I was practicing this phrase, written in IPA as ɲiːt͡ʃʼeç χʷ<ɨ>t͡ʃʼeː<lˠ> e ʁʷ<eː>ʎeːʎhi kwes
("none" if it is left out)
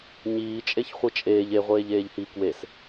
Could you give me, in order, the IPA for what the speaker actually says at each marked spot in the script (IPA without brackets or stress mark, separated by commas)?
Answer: ɨ, ʎ, eː